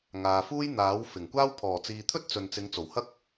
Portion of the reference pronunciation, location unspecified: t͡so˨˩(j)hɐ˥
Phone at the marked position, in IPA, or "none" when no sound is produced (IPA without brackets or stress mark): w